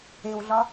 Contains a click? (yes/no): no